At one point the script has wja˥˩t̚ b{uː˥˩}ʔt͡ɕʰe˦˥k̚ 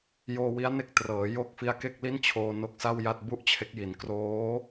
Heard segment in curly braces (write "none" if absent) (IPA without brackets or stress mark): u˥˩